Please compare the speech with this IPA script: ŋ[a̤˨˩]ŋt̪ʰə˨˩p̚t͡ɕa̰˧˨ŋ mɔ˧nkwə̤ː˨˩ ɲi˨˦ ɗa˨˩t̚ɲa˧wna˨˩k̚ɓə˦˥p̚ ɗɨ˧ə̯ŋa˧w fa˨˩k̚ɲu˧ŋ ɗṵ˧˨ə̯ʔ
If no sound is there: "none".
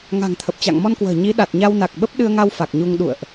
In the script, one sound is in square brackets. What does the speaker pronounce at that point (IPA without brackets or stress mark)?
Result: a̤˨˩